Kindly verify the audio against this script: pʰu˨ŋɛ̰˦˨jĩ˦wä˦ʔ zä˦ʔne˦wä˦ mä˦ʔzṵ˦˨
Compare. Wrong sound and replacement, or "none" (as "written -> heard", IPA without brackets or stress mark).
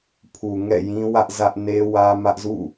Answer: none